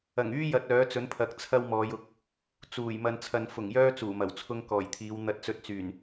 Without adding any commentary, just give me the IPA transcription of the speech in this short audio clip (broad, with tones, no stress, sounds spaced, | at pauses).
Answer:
ɐ˨˩ ŋ yː˥ j ɐ˥ t̚ œː˨˥ t͡s ɵ˨˥ n pʰ ɐ˨˥ k̚ t͡sʰ ɐ˥ w m ɔː˨˧ j ʊ˨˥ k̚ | t͡s uː˨˩ j m ɐ˨ n t͡sʰ ɐ˨ n f ʊ˨˩ ŋ j œː˥ t͡s uː˨˩ m ɐ˨˩ w t͡sʰ ʊ˥ ŋ k ɔː˨˩ j t̪ʰ iː˨˧ w n̪ ɐ˧ t̚ t͡s ɵ˧ t̚ t͡s yː˨˩ n